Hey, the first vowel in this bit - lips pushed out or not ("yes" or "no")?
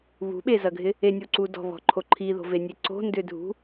yes